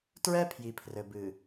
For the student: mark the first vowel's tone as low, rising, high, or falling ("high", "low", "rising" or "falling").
high